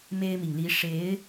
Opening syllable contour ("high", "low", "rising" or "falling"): high